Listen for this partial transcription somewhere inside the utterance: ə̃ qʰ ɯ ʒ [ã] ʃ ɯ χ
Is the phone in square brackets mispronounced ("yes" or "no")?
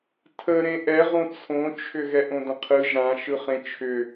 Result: no